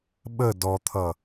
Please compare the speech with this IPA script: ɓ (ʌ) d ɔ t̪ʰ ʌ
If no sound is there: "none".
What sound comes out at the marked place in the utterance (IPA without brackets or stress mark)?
ə